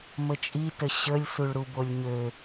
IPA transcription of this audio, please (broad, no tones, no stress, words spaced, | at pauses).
mət͡ʃʼitə ɕəlʲ suɭɾubolʲɲø